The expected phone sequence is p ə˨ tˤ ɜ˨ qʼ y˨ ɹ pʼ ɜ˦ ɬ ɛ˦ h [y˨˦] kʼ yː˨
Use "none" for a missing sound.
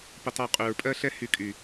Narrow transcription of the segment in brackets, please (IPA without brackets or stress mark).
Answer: y˨˦